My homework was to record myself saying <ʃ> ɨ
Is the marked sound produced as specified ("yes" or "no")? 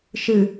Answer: yes